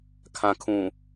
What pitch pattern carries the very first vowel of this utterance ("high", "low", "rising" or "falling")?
low